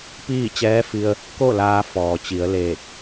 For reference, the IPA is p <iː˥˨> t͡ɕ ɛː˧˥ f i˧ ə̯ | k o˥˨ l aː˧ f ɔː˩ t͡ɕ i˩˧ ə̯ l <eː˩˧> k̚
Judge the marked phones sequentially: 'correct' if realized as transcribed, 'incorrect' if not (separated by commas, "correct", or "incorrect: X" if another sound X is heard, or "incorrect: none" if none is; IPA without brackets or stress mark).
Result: correct, incorrect: eː˧˩